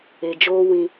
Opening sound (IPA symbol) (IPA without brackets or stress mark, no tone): e